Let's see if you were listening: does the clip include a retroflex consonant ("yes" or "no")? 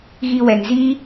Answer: no